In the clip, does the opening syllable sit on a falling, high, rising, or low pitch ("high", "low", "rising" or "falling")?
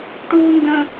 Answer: high